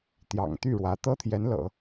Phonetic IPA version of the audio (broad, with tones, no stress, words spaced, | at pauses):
t̪jɑ̰˨˩ŋt̪y˥˩ɻwä˧˥ t̪ɤ˥t̪ʰjɛ˧˥nlɤ̰˨˩˦